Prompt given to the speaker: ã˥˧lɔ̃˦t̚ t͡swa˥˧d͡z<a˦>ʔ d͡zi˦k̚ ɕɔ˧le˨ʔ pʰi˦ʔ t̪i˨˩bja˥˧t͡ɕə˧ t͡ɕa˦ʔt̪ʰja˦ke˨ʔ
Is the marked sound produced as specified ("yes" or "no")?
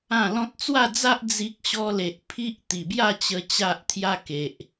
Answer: yes